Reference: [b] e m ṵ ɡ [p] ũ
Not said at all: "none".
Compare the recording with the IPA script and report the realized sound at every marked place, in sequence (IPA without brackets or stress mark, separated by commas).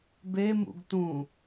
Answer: b, t